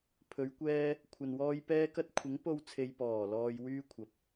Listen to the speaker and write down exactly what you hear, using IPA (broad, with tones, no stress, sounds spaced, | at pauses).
pʰ ɵ˨˧ ɥ kʷ ɛː˧ | kʷʰ ɐ˨ n w ɔː˧ j p ɛː˥ k ɐ˥ t̚ kʷʰ ɪ˨˥ ŋ p o˧ w t͡sʰ e˨ j p ɔː˨˩ l ɔː˨ j w yː˧ kʷʰ ɐ˨ p̚